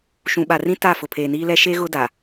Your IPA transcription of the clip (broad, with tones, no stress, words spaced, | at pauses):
ʃũ˨ɓa˨rĩ˦ ta˦˨ fʊ˨pʰeː˨niː˦lɛ˦ ʃe˦ ɣʊ˦da˨